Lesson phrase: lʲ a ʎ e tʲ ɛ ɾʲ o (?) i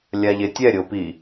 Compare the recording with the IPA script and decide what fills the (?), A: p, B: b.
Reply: A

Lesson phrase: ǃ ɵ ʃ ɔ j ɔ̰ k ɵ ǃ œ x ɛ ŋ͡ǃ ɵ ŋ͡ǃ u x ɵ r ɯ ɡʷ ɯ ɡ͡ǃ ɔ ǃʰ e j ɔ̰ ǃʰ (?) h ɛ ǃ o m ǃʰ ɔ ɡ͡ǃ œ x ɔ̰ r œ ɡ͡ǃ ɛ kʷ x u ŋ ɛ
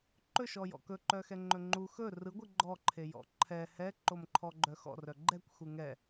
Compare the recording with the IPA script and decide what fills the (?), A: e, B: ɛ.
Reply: B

